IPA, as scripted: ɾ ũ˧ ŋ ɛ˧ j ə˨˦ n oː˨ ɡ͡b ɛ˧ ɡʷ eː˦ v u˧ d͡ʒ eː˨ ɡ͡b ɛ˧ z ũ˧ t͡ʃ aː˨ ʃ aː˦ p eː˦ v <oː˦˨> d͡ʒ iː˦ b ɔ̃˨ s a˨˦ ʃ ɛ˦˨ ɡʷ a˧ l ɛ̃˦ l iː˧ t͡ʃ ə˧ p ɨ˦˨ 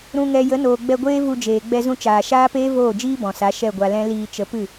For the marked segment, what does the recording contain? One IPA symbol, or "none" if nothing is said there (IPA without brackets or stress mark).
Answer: oː˦˨